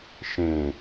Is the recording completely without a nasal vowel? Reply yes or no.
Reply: no